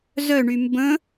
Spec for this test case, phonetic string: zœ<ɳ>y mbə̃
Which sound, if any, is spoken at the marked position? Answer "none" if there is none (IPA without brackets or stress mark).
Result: ɳ